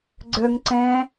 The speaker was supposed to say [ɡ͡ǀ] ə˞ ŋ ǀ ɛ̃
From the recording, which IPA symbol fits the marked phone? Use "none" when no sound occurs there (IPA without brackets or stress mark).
ɡ͡ǀ